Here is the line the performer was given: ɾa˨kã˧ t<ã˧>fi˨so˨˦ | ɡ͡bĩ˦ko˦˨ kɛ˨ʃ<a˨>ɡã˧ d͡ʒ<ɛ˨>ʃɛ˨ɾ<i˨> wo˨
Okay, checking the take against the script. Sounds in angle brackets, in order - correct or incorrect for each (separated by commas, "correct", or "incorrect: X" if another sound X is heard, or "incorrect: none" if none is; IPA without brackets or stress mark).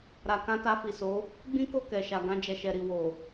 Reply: incorrect: a˧, correct, correct, correct